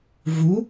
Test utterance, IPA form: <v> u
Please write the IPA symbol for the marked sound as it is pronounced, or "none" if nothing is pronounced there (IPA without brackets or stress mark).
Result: v